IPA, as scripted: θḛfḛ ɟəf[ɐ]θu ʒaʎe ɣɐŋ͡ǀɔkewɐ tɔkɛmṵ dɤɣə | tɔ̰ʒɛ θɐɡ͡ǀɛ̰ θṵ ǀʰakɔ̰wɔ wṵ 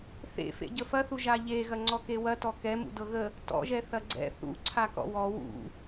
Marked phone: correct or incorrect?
correct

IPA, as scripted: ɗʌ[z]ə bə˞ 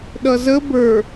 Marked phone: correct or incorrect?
correct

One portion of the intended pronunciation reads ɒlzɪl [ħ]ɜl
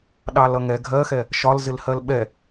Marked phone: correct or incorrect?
incorrect: h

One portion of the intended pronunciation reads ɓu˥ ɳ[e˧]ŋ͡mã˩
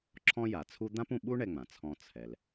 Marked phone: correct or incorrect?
incorrect: ɛ˧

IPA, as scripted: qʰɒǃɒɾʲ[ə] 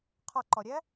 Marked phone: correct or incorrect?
incorrect: æ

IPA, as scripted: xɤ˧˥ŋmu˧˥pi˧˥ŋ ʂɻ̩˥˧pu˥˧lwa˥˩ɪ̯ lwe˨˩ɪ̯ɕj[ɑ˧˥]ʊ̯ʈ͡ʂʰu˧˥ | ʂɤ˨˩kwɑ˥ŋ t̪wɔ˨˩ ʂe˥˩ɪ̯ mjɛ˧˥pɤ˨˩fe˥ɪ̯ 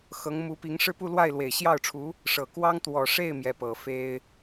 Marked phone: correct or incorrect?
incorrect: ɑ˥˩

